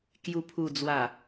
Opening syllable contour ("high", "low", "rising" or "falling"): low